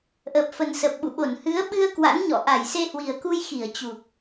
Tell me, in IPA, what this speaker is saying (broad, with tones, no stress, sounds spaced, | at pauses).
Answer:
ʔ əː˨˩ p̚ f ə˨˩ n s ə˨˩ p̚ ɓ ṵ˧˨ ɓ o˧˩ n h ɨ˨˦ ə̯ ɓ ɨ˧ ə̯ k w a̰˧˥ n ɲ ɔ̰˧˨ ʔ a˧˩ j s e˧ h w i˨˩ ə̯ k u˧ j x i˧˩ ə̯ t͡ɕ u˨˩ k̚